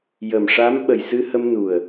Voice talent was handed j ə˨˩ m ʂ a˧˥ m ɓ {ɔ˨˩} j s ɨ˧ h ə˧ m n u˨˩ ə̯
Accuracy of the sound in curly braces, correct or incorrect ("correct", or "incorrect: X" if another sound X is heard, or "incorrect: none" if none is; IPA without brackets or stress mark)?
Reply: incorrect: ə˨˩